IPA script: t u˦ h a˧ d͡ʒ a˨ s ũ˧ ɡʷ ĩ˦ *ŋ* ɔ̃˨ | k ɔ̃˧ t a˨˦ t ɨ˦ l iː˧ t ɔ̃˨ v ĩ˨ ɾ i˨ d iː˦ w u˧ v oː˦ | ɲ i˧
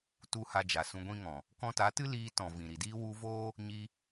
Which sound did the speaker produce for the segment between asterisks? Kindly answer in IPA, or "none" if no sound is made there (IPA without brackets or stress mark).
ŋ